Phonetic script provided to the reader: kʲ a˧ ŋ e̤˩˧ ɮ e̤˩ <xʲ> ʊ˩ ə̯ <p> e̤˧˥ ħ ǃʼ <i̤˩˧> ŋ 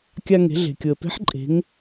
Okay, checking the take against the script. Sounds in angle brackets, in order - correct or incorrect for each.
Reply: incorrect: kʲ, correct, incorrect: e̤˩˧

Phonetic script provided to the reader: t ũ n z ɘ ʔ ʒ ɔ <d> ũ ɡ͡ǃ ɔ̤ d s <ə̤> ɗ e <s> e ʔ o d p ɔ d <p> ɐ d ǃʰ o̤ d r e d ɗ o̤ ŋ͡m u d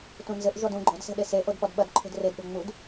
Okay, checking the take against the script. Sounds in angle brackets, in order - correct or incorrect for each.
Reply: correct, incorrect: ɛ̤, correct, incorrect: ɓ

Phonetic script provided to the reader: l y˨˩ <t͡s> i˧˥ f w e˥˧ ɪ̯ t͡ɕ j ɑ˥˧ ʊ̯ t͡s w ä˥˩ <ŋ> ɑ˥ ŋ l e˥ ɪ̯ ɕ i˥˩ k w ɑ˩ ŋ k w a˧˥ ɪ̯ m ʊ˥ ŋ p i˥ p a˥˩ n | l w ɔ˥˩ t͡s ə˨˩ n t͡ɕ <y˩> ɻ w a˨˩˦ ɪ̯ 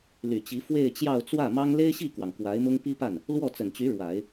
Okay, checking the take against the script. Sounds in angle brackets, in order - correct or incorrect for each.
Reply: incorrect: t͡ɕ, incorrect: m, incorrect: y˧˥

